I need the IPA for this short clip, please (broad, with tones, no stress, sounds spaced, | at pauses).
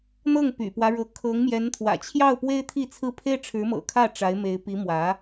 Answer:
n̪ ɤ˥˩ ŋ p y̰˨˩ p w ä˦ ɻ ɤ˧˥ kʰ ɤ˧˥ ŋ m j ɛ˧˥ n t̪ʰ w ä̰˨˩ t͡ɕʰ j ɑ˥˩ ʊ̯ p w e˥ ɪ̯ t̪ʰ i˥˧ t͡sʰ ɹ̩˥˩ pʰ e˥ ɪ̯ ʈ͡ʂʰ ɻ̩˧˥ m ɤ̰˨˩ kʰ ä˥˩ ʈ͡ʂ a˧˥ ɪ̯ m e˧˥ ɪ̯ p i˧˥ m w ä˧˥